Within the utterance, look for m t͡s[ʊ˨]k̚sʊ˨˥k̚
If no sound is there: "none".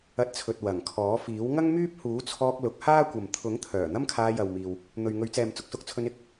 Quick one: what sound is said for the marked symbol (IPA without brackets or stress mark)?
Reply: ʊ˨